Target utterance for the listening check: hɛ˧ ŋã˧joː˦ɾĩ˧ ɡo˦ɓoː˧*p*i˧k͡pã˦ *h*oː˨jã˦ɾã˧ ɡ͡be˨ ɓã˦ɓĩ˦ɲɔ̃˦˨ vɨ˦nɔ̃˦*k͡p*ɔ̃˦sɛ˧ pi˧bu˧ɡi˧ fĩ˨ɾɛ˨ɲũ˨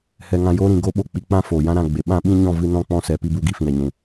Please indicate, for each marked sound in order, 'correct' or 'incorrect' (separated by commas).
incorrect, incorrect, correct